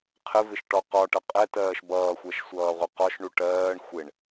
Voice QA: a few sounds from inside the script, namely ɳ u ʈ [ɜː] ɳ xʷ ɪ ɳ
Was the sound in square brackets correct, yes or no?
yes